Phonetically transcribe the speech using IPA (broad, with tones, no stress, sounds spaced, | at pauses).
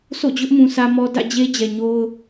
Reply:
s o̰˦˨ d͡ʑ ʊ˦ ʔ m ũ˨ s ä˦ m ɔ˦ d ä̰˦˨ d͡ʑ e˦ d͡ʑ ɛ˨ ɲ o˦ ʊ̯